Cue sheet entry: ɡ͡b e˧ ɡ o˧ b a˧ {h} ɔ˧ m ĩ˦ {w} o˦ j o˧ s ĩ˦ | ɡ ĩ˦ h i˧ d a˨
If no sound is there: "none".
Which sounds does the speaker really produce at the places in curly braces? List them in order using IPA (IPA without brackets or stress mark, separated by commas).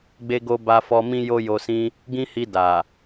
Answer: f, j